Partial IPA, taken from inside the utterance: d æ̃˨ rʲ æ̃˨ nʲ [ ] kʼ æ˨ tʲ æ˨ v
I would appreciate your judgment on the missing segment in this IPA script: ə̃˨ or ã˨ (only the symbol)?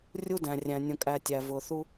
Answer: ə̃˨